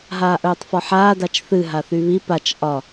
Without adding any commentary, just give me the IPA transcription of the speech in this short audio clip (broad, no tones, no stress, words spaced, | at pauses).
ɦaːʔœːtˤfɒħaː dat͡ʃθɨ ɦaθyβi pat͡ʃ ʔɒ